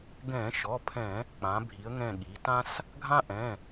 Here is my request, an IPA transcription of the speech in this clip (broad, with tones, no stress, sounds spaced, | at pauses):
ɡ ɛ̃ː˧˩˧ ʃ ɔ˩˧˩ pʰ ɛ̃˧˩˧ | k͡p ã˩˧ bʱ i˩˧ ə̯ ŋ ɛ̃˧˩ ɠ i˩˧ t ã˦ s | ɡʱ ã˦ ʔ ɛ̃˩˧˩